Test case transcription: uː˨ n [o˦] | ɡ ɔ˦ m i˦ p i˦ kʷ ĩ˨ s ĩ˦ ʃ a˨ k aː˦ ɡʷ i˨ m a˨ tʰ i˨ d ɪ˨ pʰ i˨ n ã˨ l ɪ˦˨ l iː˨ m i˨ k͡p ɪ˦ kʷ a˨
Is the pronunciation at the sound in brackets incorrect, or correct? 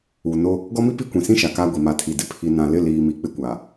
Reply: correct